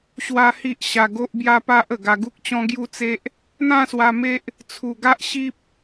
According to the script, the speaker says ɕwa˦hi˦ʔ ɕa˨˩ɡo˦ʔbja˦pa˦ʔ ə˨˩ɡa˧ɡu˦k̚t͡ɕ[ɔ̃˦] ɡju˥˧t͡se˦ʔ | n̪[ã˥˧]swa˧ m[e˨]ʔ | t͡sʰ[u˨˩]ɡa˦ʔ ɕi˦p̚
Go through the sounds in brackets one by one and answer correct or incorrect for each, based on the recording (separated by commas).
correct, correct, incorrect, correct